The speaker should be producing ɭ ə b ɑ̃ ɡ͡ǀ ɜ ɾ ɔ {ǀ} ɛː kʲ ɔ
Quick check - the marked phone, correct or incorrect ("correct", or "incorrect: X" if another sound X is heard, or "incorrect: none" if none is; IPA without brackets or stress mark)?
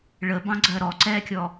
correct